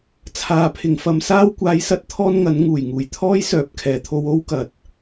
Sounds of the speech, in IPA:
t͡sʰ aː˨ pʰ ɪ˨ ŋ f ɐ˨˧ m s aː˥ w kʷ aː˧ j s ɐ˥ t̚ t̪ʰ ɔː˥ n ŋ ɐ˨˥ n ŋ uː˨˩ j ŋ uː˨˩ j t̪ʰ ɔː˥ j s œː˨˥ p̚ kʰ ɛː˨˩ t̪ʰ o˧ w o˥ w k ɐ˨ t̚

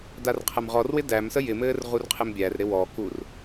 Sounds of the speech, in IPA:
d a r qʰ æ m ʁ ɔ r w ɪ d æ m s ə j ɪ m ɘː r ʁ u r qʰ ɪ m bʲ æ r ɾ ɪ w ɔ k u r

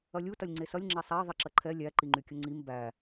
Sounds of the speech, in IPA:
ɐ lʲ u t ɐ lʲ ŋ͡ǀ e s ɐ lʲ ŋ͡ǁ ɛ sˤ æ ðˤ i ǁ ɐ ǃʰ ɛ lʲ æ ǃ i ŋ͡ǃ y kʲ ə ŋ͡ǀ i m b æ

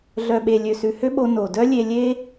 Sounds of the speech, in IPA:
ɮ œ˨ ɓ e˨ lʲ ø˨ s ʉ˨ h ø˦ ɓ o˧ n o˨ d œ˦ lʲ e˧ lʲ e˦

